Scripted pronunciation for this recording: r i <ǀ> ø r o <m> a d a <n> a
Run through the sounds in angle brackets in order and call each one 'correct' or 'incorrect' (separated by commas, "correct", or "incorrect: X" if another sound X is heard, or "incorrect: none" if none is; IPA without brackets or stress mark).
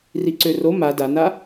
correct, correct, correct